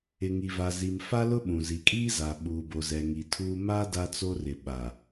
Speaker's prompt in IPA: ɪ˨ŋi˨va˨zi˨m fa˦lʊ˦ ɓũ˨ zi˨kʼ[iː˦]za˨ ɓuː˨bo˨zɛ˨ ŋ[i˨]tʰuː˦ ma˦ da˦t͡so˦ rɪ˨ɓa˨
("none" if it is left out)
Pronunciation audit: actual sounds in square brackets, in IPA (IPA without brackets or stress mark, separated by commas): iː˦, i˨